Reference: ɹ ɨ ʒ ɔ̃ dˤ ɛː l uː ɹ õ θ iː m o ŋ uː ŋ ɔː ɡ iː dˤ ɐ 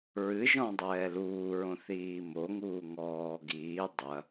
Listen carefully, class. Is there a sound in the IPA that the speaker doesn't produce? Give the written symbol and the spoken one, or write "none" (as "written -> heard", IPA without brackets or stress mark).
none